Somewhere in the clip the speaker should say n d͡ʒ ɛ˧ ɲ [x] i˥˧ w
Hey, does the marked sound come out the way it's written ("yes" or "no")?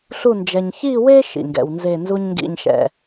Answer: no